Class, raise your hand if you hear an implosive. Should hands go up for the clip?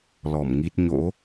no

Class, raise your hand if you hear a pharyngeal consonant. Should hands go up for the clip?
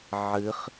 yes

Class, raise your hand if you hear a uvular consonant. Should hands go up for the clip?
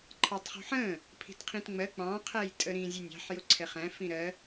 yes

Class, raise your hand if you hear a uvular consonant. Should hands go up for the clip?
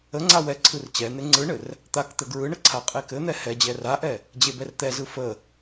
yes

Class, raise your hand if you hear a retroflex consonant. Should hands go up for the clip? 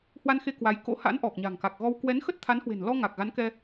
no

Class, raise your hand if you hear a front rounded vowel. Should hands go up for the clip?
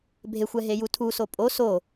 no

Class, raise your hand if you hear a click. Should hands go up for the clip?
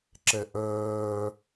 yes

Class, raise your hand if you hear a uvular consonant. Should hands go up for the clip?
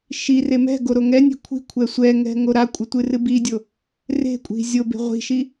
yes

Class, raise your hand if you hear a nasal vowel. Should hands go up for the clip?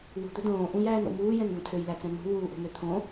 yes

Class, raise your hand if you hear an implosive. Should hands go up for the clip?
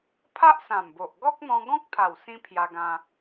no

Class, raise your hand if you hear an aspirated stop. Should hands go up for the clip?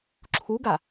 yes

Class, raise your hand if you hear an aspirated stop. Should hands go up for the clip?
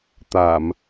no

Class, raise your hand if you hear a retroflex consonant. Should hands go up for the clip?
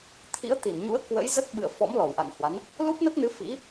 no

